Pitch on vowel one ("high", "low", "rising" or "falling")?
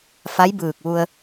rising